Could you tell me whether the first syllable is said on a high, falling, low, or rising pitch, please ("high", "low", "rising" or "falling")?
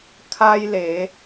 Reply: high